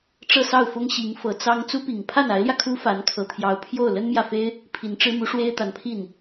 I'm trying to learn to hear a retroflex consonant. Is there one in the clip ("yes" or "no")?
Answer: yes